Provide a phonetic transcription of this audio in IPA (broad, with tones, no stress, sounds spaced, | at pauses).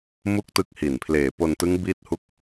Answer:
m u˦˥ k̚ t ɯ˦˥ k̚ h i˨˩ n pʰ l eː˨˩ p o˧ n t ɯ˦˥ ŋ b i˥˩ t̚ h u˥˩ k̚